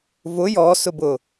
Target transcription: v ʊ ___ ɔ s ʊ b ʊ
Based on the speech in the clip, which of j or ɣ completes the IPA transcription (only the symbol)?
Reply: j